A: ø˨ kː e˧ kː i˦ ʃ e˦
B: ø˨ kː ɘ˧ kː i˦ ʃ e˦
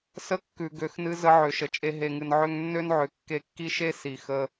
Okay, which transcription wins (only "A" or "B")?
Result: A